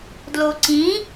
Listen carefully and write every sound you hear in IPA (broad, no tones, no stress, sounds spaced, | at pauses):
d l o ǀ ĩ